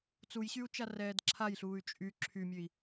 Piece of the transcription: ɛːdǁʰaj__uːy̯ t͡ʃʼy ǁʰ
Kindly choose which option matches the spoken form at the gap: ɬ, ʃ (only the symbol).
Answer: ɬ